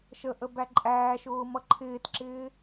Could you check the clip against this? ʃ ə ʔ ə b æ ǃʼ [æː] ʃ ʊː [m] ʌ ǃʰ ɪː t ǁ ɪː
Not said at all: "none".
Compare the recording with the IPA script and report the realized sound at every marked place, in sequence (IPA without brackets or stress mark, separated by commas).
æː, m